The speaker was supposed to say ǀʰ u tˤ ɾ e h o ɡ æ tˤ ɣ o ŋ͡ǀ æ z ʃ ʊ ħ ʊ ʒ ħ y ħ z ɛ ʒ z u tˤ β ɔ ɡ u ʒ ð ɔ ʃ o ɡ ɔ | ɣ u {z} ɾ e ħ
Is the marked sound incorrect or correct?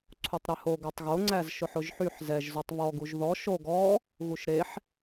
incorrect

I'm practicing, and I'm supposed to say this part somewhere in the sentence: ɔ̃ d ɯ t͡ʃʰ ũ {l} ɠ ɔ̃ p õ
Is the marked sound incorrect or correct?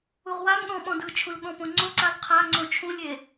correct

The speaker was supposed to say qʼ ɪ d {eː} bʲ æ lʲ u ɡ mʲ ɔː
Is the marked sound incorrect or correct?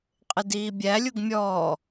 incorrect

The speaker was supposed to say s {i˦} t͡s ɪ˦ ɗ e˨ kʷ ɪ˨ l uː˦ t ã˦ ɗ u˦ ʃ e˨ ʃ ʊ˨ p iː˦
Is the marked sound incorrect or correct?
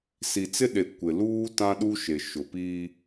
incorrect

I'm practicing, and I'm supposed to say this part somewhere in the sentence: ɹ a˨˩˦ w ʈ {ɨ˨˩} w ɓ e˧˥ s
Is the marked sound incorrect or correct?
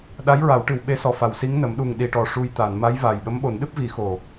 correct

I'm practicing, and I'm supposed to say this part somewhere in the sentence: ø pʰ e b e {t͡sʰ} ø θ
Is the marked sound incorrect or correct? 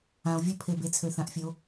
correct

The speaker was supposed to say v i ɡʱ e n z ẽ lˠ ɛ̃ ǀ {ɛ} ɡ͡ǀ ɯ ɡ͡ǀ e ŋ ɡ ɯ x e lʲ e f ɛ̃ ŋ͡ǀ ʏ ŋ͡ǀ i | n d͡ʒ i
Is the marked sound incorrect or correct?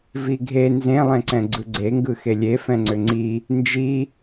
incorrect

